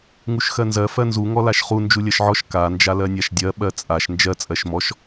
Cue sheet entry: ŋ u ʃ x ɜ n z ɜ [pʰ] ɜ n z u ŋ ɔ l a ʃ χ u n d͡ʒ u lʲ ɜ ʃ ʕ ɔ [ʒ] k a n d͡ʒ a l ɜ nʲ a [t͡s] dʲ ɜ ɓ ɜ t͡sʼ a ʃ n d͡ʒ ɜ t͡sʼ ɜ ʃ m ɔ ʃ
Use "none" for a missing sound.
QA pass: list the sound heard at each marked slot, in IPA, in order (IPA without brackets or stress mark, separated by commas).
f, ʃ, ʃ